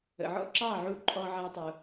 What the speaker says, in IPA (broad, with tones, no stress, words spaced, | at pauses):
ə̰˨ʕɔ̰˦ ǁɑ˦˨ʕu˧ ǃʼɔ˧ʕa˧tˤu˨